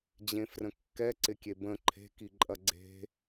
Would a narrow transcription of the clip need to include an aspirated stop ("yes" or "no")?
yes